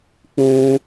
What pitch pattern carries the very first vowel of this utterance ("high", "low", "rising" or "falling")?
high